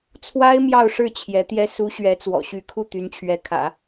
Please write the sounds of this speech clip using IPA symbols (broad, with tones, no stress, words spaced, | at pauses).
t͡sʰwa˥ɪ̯ mjɑ˥˧ʊ̯ʂɻ̩˥˩ t͡ɕʰjɛ˧˥t̪jɛ˥ su˧˥ ɕɥɛ˧˥t͡swɔ̰˨˩ɕy˧˥ kʰu˥˩ t̪y˧˥nt͡ɕʰɥɛ˧˥ kʰä̰˨˩˦